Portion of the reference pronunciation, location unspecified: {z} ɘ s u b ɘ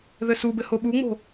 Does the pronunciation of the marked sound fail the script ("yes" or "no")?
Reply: yes